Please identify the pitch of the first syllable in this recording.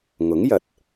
rising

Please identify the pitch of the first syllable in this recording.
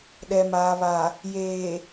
low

